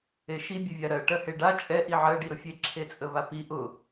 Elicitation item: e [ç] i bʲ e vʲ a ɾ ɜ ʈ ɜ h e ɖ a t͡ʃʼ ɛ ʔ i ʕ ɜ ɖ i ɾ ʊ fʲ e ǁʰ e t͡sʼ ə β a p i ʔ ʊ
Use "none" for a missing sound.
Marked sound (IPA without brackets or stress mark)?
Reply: ʃ